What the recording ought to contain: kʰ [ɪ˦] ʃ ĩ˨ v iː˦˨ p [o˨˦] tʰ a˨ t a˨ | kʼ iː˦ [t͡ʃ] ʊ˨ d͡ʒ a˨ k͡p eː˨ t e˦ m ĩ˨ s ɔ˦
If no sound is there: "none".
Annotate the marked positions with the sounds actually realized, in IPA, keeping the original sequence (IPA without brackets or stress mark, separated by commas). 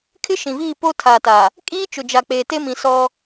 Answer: ɪ˦, o˦, t͡ʃ